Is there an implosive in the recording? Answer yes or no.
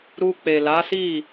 no